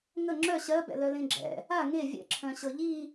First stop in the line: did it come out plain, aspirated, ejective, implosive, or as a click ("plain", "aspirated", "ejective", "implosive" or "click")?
click